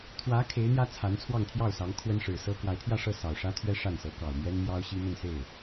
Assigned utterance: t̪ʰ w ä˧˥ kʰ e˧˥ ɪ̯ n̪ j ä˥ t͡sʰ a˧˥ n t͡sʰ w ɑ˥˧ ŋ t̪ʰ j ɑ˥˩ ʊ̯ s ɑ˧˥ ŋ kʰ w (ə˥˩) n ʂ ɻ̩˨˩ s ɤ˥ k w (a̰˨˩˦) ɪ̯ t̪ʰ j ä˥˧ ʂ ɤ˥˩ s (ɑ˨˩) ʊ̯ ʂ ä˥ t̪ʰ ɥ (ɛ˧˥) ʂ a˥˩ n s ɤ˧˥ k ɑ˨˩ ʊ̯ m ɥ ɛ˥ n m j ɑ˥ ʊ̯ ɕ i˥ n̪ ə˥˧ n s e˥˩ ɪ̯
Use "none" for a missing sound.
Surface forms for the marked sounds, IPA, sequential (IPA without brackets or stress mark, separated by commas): ə˥, a˧˥, ɑ˨˩, ɛ˥